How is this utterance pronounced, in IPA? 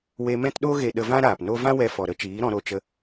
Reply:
w e˧ m ɛ̃˦ t ɗ o˦ ɣ e˧ ɗ ə˧ v ã˦ ɾ aː˨ p n o˦ v ã˦ w ɛ˧ f ɔ˨ ɾ ə˦ t͡ʃ iː˨˦ ɾ ɔ̃˧ ɾ o˧ t͡ʃ ə˧

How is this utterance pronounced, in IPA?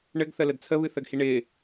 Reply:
ɳ ɘ ɡ θ ə l ə d t͡sʰ ə β ɨ θ ə ɡ h i ɳ ɪ

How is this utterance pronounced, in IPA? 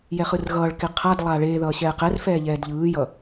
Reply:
j ɛ χ ɯ r ɣ ʌː ɭ k e qʰ a d lˠ aː ɭ eː ð ʌː ɕ ɛː q ɛ r f ɛː ʎ ɛː d ʎ ɯː j ʌ

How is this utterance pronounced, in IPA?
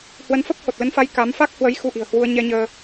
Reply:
h w ə˨˦ n f ə˦˥ p̚ h o˨˩ t̚ l ə˨˦ n f a˨˦ j k a˨˦ m f a˦˥ k̚ h w ə˨˦ j x u˧ ʔ i̤˨˩ ə̯ h w u˧ ə̯ ɲ ɛ˧ ɲ əː˧

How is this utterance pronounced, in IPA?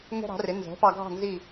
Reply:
ŋ ɛ̤˥ ɾ ɑ̤˩˥ r ɪ˩˥ n z ɛ̤˩˥ p ɑ˧ ɡʱ ɑ̤˥˩ n z i˥˩

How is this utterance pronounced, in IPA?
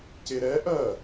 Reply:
c e ɾ ɛ ʔ ɜ

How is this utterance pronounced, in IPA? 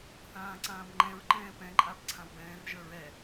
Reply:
θ ãː ǀ ãː b ŋ͡ǃ ɛ̃ ɹ ǃ ɛ̃ː p ɛ̃ ǃʼ a b ǀʰ ã w b ɛ̃ː r ʒ ə˞ ɹ ɛ

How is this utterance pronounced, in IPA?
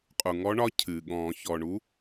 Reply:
qʼ u˩ ŋ ɔ˧˥ ɳ ɒ˧˥ cʰ ɨː˩ ɠ ɔ̃ː˨˩˦ ç ɔː˩ ɳ u˧˥

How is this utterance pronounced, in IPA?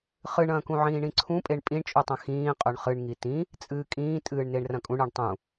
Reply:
χ ɨ ɳ ɐ̃ː k ũ ʕ ĩː ɳ ĩ ǀʰ ũ pʼ e ɳ pʼ ĩ ɳ t͡ʃʼ u tˤ ɐ̃ x ĩː qʼ ɵ ɳ χ ɨ ɳ ŋ i t ĩ | t͡sʼ ɨː kʼ ĩː tʼ ɨː ɳ n e ɳ r ɐ̃ kʼ ũ ɳ ɨ ɳ tˤ ũ

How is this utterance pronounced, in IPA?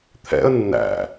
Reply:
t̪ʰ ɛ̰ ə̯ nː æ̰

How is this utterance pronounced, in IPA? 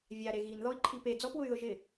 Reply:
vʲ a ɾ e ɣ i n ð ɔ i̯ ǃʰ i p e d͡z ɔ p w ʊ y̯ ð ʊ ʒ ɪ

